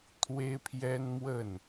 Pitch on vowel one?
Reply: high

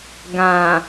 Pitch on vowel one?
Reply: low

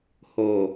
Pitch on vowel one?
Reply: low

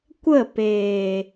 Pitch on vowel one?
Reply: falling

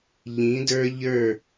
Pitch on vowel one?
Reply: rising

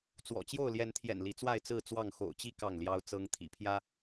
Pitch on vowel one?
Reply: low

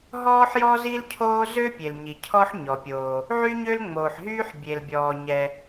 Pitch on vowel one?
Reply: high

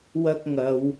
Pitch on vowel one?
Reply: high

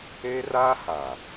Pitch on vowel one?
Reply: high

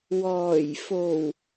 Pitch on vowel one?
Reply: low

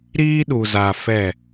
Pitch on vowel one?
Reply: high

